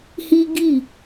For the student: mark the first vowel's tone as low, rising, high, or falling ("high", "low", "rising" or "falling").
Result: high